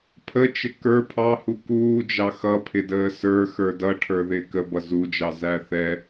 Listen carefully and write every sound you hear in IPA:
pʰ ə t͡ʃ ɪ k ə˞ pʰ ɑ h u k uː d͡ʒ ɑ x ʌ pʰ ɪ d əː s ə˞ x ə˞ d ʌ ʈʰ ə˞ ð ɪː k ə b ʌ z u d͡ʒ ɑ z æ θ ɛ

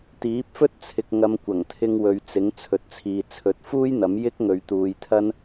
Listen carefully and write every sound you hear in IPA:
t̪ iː˨˥ p̚ f ɵ˥ t̚ t͡sʰ ɪ˨ k̚ ŋ ɐ˨˧ m kʷ ɐ˨˩ ŋ t̪ʰ ɪ˧ ŋ w ɵ˨ ɥ t͡s ɪ˨˥ ŋ t͡sʰ ɵ˨ t̚ t͡sʰ iː˨ t͡sʰ ɵ˨˥ t̚ f uː˥ j n̪ ɐ˨˥ m j ɪ˥ k̚ ŋ ɵ˨ ɥ t̪ uː˨˧ j t̪ʰ ɐ˥ n

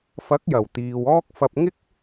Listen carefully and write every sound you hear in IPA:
f ɐ˨˥ k̚ j ɐ˨˩ w t̪ iː˨ w ɔː˥ k̚ f ɐ˧ p̚ ŋ ɪ˥ k̚

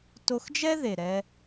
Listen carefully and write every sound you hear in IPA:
t o˧ x d͡ʒ ɛ˦ ð e˨ ɾ ɛ˧

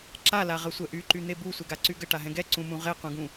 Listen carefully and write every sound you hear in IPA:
ǁ a l a ʁ ə sʷ ɛ ʔ y ǃ y n̪ e b u sʷ ɛ ɡ a ǀ y ɡ ə ʈ a ɦ ɛ̃ ɡ ɛ ǀ ũ m ũ ʁ e q ũ ɡ ũ

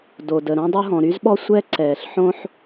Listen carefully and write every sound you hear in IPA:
d o˩ d ə˩ ɾ õ˥ dˤ o˥ ɦ ɔ̃˩ ɾ y˥ z ɓ ɔ˥ sʷ ɛ˥ ǀ ɛː˩ ɬ ħ õ˥ ħ

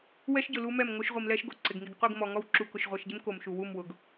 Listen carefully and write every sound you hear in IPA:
w ɛ˦ ʃ ɟ ʊ˨ l u˦ m ɛ˦˨ m ŋ o˦ ʃ ʁʷ i˨ m l ɛ˦ ʃ ɡ o˨ ǀ ɪ˨ ɡ ŋ i˨ ɡ qʷ i˦˨ ɡ m ɔ˨ ŋ ɔ˦ w ǁ u˨ k ʊ˨ ʃ ʁʷ e˨ ʃ ɟ ɪ˦ m k o˨ m ʃ u˨ w u˦˨ m w ʊ˨ ɡ

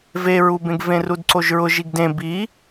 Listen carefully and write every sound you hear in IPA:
v e ɹ u b ẽ ɡ v ẽ r u d ǀ o ʒ ɹ ʊ ʒ i ɡ d ẽ b i

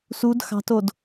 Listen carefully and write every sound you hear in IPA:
s u d x ɑ̤ t o d

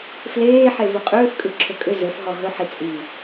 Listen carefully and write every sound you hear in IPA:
f l eː ħ e v ɵ qʼ ʏː f kʼ ɯ ǁʰ ɵ kʼ ʏ z ɵ f ɦ ɔ ɦ ɵ ħ i t͡sʼ i

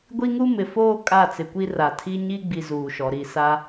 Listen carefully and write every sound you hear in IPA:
ɡʷ i˦ ŋ u˦ m ɪ˨ f oː˦ kʼ a˦˨ t͡s ɪ˨ kʷ i˦ r a˨ tʰ i˦ ɲ i˦ ɡ͡b i˨ z uː˨ ʃ ɔ˨ ɾ i˦˨ s a˦

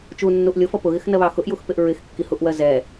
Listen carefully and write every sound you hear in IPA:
t͡ʃ u nː u ʔ lʲ ʊ f ʌ p ʊ ɣ ɪ x n ɜ β ɑ x ʊ ʔ j u x p ɪ ʔ ɹ ɪ x kː i h u ʔ w ɜ z ɛ

